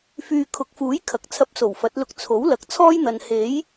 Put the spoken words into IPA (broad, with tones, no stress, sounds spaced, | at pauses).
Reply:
f yː˨ kʰ ʊ˨˥ k̚ f uː˨˥ j kʰ ɐ˨ k̚ t͡sʰ ɐ˧ p̚ s o˨˩ w f ɐ˨˥ t̚ l ʊ˧ k̚ t͡sʰ o˨˥ w l ɐ˨ k̚ t͡sʰ ɔː˥ j n̪ ɐ˨ n h e˨˥ j